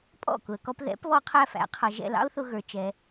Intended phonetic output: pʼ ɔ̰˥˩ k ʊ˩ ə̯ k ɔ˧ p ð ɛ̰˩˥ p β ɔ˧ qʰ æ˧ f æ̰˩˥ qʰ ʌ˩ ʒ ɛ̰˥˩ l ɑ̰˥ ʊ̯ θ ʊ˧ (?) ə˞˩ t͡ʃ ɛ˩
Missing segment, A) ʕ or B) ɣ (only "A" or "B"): B